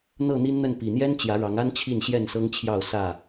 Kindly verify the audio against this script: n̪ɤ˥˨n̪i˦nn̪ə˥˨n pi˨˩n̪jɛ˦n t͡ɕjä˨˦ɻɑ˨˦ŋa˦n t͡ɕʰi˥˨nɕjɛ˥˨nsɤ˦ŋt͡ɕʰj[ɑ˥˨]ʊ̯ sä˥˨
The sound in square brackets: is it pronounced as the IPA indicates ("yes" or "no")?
yes